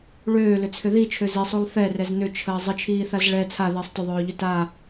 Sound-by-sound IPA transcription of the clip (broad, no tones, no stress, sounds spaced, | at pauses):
ɭ øː l ʏ t͡sʰ ʏ ð i t͡ʃʰ ø z i sˤ o lˠ θ ɛ r ɛ z n ʏ t͡ʃʰ əː zˤ ə t͡ʃʰ iː θ a z ɭ ɛ t͡sʰ a ð əː sˤ t ʏ ðˤ øː ʎ ʏ t a